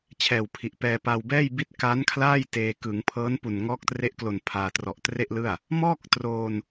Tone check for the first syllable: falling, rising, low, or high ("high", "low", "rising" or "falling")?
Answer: low